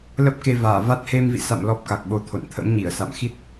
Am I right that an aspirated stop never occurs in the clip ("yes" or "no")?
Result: no